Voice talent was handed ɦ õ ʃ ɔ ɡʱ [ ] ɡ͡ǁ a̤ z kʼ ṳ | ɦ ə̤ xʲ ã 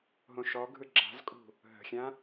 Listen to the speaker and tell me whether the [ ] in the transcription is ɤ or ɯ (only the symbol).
ɯ